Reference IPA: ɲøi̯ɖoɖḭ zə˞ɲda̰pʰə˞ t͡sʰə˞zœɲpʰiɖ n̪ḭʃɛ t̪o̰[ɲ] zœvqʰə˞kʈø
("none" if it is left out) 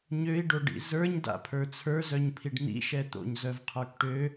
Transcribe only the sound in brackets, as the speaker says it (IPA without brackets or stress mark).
ɲ